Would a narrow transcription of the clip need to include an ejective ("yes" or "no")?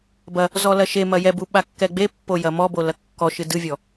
no